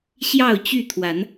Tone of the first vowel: falling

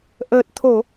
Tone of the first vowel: low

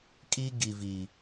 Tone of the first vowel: high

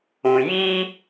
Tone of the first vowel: low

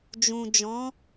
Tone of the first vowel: low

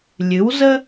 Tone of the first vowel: rising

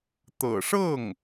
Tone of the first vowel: low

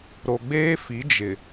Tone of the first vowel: low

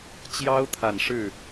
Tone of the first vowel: high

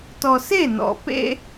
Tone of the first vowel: low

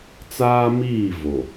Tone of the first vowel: high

